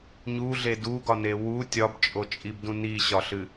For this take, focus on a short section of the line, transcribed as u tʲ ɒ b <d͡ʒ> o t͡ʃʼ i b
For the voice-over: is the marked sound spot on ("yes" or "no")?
no